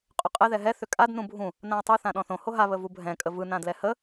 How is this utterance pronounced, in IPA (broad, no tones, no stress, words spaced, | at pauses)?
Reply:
qʼʏqʼɛ ðɛɦɛ θʏkʼad nũbʱũ | nãə̯tˤu θãɗɔ̃θõ hoɦa βəvubʱɛ̃ kʼəvɯ nãdlɛhə